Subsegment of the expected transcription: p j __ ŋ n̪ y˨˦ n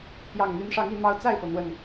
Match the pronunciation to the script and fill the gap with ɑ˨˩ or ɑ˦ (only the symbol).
ɑ˨˩